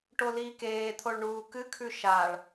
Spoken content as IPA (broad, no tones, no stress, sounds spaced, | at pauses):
ʈ o l iː k eː t̪ʰ o ɭ ɳ uː k ɨ kʰ ʉ ʃ a ɭ